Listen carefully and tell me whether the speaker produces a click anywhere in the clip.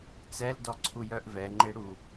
yes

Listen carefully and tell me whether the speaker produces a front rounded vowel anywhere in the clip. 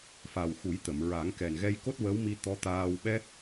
no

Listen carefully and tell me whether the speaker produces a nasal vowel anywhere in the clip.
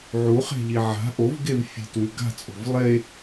no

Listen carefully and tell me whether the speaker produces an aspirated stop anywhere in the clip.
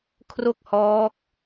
yes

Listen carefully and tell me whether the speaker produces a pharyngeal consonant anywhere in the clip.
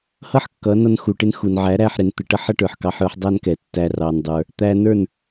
yes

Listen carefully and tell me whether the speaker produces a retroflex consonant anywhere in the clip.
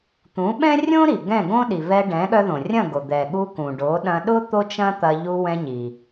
yes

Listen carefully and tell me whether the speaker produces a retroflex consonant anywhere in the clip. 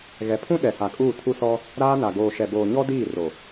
no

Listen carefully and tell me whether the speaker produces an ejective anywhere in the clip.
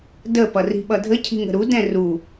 no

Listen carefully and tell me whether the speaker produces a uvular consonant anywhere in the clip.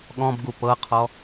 yes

